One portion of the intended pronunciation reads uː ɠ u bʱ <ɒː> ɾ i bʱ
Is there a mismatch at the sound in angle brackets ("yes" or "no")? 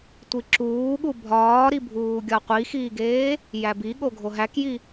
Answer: no